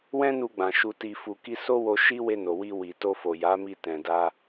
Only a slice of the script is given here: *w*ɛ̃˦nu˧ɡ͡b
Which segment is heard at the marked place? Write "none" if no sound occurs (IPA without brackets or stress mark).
w